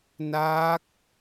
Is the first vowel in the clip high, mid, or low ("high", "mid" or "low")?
low